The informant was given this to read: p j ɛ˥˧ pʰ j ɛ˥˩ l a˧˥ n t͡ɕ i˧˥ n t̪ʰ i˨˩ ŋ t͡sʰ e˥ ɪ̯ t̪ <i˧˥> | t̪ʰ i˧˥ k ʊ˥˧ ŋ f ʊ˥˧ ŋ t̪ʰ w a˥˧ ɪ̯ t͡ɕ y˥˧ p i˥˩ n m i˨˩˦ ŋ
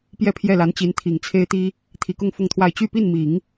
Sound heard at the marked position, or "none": i˥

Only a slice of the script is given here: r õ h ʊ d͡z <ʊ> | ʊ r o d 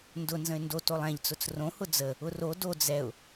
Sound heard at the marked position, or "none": ə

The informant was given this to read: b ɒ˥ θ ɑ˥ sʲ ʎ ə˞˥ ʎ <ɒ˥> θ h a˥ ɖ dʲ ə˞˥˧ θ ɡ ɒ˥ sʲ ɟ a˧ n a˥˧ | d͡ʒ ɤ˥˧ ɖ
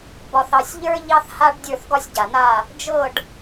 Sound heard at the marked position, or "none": ɑ˥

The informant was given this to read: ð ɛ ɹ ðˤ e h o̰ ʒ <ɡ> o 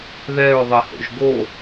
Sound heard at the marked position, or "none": ɡ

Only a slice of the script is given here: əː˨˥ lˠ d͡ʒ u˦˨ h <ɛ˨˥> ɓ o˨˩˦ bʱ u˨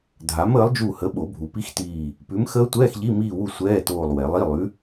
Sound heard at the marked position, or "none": ə˨˥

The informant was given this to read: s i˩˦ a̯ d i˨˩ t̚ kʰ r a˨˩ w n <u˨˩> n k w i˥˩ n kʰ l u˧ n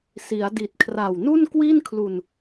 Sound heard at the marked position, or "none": u˥˩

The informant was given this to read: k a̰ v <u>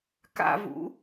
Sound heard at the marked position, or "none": ṵ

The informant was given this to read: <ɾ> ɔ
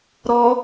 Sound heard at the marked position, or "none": ɾ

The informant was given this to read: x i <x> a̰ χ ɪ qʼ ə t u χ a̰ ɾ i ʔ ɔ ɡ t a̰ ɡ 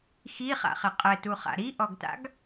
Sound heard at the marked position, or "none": χ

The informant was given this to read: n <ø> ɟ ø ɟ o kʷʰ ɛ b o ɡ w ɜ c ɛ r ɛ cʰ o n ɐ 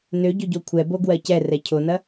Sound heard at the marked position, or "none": ø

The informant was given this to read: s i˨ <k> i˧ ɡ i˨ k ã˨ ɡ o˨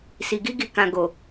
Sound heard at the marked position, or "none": ɡ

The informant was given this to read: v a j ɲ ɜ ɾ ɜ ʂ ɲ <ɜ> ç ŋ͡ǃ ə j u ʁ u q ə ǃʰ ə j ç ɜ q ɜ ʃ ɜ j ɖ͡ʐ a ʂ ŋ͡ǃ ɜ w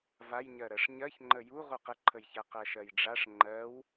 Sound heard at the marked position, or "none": ɜ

